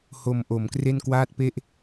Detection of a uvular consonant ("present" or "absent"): absent